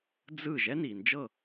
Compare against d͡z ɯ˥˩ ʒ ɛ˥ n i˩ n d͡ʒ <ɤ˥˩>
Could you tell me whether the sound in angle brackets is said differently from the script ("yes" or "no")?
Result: no